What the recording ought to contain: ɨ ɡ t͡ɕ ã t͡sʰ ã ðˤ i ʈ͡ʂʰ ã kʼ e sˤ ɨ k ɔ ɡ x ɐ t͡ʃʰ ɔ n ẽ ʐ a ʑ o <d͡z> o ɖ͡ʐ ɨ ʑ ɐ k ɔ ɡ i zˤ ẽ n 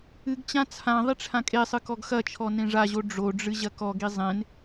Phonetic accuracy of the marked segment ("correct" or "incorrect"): incorrect